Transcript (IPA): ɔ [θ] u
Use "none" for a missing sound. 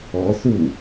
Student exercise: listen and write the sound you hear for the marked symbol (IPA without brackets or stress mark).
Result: θ